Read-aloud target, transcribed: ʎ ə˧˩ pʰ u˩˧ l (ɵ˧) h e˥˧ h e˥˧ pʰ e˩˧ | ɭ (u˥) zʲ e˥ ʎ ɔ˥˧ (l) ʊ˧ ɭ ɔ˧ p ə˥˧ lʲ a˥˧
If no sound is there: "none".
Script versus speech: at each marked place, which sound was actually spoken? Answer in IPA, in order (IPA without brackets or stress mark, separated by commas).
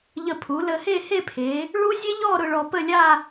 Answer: ə˧, u˥, ɾ